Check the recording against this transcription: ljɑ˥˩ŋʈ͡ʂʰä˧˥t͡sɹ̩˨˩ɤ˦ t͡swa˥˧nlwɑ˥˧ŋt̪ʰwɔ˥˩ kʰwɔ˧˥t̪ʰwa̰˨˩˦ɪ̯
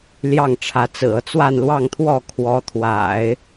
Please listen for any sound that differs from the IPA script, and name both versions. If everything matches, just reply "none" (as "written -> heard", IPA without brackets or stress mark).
none